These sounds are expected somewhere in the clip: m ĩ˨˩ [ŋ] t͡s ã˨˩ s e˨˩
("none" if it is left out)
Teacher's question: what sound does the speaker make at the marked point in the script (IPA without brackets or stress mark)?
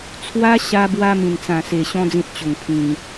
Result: n